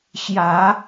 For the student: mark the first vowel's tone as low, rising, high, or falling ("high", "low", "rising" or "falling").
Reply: rising